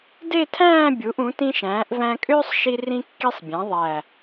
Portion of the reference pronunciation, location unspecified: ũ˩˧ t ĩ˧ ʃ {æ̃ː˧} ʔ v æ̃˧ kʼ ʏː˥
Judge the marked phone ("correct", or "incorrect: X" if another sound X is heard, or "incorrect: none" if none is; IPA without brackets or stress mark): incorrect: æ̃ː˩˧